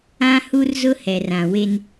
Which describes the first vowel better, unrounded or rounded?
unrounded